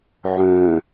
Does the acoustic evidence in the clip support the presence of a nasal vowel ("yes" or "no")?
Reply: yes